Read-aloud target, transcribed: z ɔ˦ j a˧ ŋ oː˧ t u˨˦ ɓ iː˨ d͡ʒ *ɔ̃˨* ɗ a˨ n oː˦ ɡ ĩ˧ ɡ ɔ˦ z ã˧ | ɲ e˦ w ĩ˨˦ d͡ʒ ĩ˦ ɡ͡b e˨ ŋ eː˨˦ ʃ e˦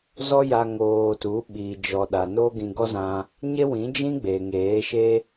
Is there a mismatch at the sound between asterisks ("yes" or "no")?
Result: yes